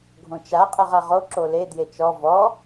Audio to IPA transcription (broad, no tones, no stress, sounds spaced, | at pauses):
ɡʱ õ t͡ʃ a qʼ e ʁ a ʁ o ǁ o l e d j e t͡ʃ ɔ v ɔ